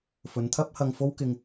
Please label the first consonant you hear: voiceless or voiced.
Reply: voiceless